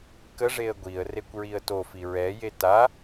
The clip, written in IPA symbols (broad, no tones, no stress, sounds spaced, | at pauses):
k ə ʐ e ə̯ ɡʷ i ə̯ r e kʷ ɹ i ə̯ t o f i ɹ ɛ j e t a